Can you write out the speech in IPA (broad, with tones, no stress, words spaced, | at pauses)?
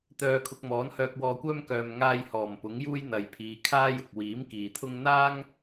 t̪œː˨kʰʊ˨k̚ mɔː˨˥nhœː˧k̚wɔː˧kʷœː˥m kœː˨m ŋaː˧j hɔː˨˩mpʊ˨˥ŋjuː˥j n̪ɐ˨jpʰiː˨˧ kʰaː˥jʊ˨k̚ wiː˨˥m kiː˨t̪ʰʊ˥ŋ n̪aː˥ŋ